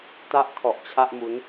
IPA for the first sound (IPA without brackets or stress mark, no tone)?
t